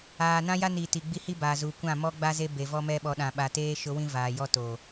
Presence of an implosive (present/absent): present